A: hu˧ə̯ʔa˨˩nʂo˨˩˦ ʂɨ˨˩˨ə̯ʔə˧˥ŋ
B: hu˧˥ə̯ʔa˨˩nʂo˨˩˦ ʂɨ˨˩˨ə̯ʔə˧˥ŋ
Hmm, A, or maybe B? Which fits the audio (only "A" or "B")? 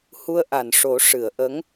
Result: A